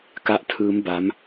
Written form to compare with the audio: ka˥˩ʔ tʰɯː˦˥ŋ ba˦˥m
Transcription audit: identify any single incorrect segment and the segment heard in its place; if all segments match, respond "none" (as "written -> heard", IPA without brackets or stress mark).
ŋ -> m